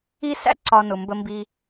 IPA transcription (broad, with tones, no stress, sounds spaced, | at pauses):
i˥ s æ̰˥ ǀ ɒ˨ n ʊ˩ m b ə˨ m b i˨